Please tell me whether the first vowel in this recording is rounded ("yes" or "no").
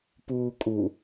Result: yes